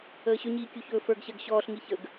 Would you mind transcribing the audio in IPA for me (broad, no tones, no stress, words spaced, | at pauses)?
əːɕɵɲiː kʲuçɵːfə˞ɡɕɜɡ ɕɔːɬŋi çəɡ